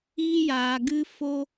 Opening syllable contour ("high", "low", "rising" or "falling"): high